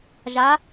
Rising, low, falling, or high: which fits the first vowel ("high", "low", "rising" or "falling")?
rising